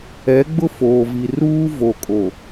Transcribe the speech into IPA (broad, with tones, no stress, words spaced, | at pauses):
ɛ˨˦ɡ͡bʊ˦ foː˨vi˨ruː˦ vo˨kʼo˨